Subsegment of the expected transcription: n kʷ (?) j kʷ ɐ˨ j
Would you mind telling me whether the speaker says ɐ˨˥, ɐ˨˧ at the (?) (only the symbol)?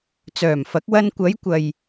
ɐ˨˧